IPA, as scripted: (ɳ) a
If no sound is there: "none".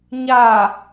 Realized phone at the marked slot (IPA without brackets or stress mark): ɲ